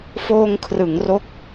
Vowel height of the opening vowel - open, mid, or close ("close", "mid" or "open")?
mid